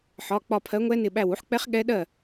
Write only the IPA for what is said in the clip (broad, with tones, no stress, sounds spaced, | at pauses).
ħ ɒ˩˧˩ k͡p ɒ˧˩ pʰ ɜ˨˥ ŋʷ ɛ˦˥ n ɪ˧˩ ɓ æ˧˩ w u˨˥ ħ k͡p ɛ˦˥ χ ɠ ɛ˦˥ ɗ ɜ˥˩